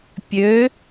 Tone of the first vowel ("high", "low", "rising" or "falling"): rising